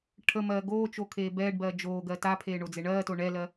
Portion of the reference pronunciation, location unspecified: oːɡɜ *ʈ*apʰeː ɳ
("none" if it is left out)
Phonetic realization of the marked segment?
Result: t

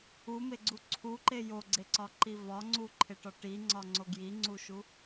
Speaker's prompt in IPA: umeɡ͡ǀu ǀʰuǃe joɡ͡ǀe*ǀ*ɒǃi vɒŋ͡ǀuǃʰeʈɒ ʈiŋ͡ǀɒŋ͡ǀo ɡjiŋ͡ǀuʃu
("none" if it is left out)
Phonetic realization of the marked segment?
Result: ǀ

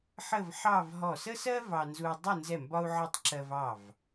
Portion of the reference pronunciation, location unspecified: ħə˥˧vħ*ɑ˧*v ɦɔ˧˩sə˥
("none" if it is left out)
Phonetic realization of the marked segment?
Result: ɑ˥˧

